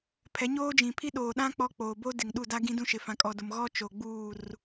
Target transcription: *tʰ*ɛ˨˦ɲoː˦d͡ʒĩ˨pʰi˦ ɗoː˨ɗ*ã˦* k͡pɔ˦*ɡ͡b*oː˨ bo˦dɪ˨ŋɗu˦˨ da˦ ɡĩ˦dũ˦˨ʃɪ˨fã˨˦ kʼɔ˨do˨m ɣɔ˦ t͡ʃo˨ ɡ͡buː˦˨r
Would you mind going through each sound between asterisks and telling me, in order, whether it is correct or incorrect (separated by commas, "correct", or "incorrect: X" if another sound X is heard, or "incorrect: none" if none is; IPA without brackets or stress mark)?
incorrect: pʰ, correct, incorrect: k͡p